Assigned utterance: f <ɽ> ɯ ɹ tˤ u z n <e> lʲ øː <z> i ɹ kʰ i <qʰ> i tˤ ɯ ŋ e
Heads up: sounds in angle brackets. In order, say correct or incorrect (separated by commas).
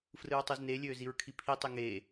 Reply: incorrect, correct, correct, incorrect